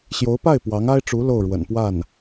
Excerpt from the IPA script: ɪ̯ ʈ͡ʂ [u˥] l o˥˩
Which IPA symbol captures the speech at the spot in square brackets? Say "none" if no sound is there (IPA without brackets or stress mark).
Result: u˧˥